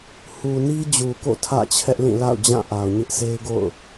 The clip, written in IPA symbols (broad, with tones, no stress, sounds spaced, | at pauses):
h u˨ n i˦ d͡ʑ u˨ k o̰˦˨ tʰ ä̰˦˨ t͡ɕʰ ɛ˦ ʔ l ĩ˦˨ l a̰˦˨ ʊ̯ d͡ʑ ã˦˨ ʔ a˨ ʊ̯ ɲ ɪ˦ ʔ s e˦ ɪ̯ ɡ o̰˦˨ ʊ̯